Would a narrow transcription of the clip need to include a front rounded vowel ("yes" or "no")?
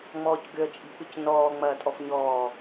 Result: yes